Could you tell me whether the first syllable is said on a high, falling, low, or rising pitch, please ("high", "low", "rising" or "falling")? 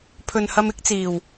low